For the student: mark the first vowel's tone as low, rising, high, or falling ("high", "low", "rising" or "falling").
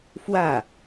falling